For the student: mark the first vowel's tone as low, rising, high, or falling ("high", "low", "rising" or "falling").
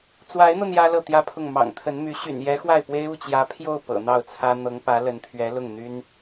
rising